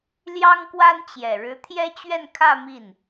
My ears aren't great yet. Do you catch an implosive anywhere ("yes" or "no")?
no